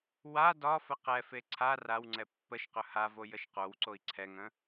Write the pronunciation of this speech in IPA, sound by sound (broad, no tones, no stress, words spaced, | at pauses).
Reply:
wa dɒ fəqɛfe ǀʰa rawŋ͡ǀɛ pːəʃqɵ havo jəʃqowǀoi̯ ǀʰɛŋə̃